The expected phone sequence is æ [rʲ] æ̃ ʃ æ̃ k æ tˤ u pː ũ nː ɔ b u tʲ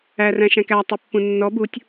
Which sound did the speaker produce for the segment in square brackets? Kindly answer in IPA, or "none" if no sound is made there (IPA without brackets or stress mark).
r